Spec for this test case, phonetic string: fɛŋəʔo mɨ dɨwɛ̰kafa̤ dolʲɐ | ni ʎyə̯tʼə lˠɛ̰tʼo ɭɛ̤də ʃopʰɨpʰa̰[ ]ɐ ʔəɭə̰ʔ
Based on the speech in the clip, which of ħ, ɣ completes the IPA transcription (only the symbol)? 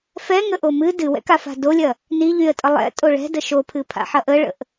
ħ